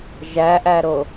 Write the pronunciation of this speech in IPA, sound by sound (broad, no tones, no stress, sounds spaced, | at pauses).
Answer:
ʒ æ ʔ æ ɾ o